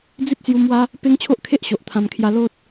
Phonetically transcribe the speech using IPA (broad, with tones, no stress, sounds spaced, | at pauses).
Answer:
d͡z i˦ p̚ s j u˧ m w a˦ | p e˦ ŋ t͡ɕʰ o˦ ʔ kʰ e˦ ʔ ɕ o˨ ʔ t̪ʰ ã˧ m kʰ j a˦ l o˦ t̚